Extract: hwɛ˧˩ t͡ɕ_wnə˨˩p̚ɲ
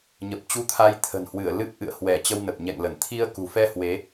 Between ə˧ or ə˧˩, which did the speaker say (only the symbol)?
ə˧